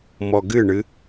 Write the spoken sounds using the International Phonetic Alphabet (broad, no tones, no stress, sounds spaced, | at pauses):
m ɔ ɡ ɨ ɳ ɨ